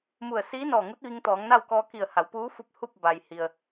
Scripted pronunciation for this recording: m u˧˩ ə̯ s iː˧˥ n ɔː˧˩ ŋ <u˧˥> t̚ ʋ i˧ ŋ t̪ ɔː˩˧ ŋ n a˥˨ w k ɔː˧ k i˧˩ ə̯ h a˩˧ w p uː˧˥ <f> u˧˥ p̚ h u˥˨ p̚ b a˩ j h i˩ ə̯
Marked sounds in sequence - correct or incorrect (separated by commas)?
correct, correct